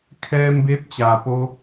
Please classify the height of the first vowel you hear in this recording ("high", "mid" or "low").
mid